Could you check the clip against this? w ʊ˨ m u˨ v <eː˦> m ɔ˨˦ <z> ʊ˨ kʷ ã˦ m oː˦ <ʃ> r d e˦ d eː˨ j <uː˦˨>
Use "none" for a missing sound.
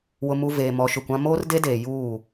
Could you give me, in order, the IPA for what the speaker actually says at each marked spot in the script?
eː˨, ʃ, none, uː˦˨

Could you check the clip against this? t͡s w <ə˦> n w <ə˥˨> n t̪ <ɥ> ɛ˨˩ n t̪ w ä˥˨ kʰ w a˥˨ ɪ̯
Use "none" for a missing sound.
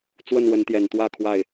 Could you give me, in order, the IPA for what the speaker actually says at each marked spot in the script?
ə˥˨, ə˨˦, j

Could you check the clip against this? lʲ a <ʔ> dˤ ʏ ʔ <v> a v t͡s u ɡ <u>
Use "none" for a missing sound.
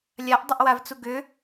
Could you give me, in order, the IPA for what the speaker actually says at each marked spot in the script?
ʔ, w, ʏ

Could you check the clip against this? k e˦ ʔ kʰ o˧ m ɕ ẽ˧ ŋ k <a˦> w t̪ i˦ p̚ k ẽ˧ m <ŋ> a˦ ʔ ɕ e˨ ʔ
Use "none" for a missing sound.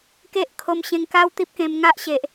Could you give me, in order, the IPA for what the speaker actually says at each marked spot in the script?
a˦, ŋ

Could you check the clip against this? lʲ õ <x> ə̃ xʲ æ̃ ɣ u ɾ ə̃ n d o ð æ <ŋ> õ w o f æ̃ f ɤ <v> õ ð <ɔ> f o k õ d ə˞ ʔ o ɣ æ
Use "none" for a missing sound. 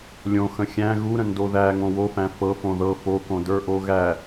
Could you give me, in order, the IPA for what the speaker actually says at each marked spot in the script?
x, ŋ, f, ɤ

